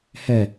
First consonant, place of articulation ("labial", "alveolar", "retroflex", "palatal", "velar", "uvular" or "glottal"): glottal